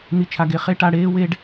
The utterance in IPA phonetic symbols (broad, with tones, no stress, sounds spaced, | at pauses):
n̪ i˧ t͡ʃʰ a˧ ɡ e˧ χ e˦ ʈ a˧ ɽ eː˦ w e˦ ɖ